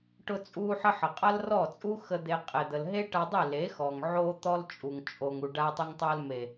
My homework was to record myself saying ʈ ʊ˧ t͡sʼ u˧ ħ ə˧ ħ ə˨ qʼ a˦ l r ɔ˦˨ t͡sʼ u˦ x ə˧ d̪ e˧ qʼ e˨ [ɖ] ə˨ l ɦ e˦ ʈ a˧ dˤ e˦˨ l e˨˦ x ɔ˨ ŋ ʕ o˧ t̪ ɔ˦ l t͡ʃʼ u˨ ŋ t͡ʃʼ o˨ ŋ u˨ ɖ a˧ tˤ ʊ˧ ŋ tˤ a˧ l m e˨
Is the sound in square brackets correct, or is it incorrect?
incorrect